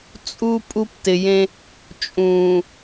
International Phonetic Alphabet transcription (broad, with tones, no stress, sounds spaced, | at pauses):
t͡sʼ u˦ pʼ u˦ p t ɪ˨ j ẽ˦ | t͡ʃʼ ũː˨